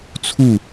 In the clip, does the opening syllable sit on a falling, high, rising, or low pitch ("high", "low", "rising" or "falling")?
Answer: falling